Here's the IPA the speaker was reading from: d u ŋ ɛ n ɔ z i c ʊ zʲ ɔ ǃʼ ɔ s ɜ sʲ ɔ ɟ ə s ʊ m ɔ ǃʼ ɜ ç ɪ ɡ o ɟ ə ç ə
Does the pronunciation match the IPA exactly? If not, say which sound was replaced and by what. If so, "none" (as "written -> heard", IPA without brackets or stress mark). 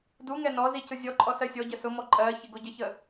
none